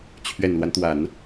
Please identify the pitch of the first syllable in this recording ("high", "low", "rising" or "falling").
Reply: low